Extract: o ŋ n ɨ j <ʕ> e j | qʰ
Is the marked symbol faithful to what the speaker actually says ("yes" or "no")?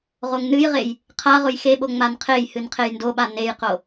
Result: no